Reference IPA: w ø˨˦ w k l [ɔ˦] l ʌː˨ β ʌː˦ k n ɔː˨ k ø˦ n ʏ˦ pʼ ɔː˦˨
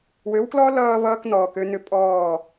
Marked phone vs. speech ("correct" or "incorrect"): correct